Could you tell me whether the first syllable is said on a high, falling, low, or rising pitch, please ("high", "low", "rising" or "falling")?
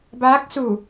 rising